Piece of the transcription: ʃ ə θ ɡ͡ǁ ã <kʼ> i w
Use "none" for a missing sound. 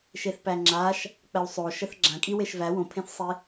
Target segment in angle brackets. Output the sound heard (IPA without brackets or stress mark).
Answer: kʼ